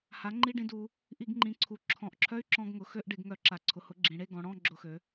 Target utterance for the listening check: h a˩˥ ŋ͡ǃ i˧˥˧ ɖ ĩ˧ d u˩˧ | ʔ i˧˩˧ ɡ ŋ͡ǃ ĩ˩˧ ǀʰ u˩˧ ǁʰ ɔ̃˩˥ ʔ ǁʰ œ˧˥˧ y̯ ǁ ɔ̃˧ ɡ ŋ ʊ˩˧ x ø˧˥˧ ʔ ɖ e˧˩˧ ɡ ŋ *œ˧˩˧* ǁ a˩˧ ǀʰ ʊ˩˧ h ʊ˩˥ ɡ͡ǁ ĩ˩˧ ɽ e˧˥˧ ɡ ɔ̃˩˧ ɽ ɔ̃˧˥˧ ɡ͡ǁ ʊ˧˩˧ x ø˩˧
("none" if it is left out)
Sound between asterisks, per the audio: œ˧˩˧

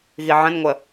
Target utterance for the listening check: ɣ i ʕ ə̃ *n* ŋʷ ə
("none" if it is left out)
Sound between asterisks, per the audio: n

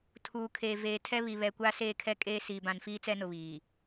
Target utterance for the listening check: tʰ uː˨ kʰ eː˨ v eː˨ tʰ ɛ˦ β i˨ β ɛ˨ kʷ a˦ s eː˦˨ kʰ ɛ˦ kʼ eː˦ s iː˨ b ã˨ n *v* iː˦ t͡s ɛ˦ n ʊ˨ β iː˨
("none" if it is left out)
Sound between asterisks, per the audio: f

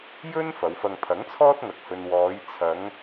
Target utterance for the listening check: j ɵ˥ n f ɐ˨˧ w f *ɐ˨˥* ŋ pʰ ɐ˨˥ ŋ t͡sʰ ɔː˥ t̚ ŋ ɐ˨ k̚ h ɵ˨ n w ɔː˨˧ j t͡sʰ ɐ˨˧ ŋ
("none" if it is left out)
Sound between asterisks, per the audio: ɐ˧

